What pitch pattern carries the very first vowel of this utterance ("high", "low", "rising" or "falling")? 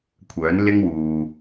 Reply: rising